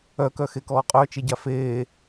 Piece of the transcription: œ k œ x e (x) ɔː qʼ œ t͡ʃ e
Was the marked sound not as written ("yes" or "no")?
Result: yes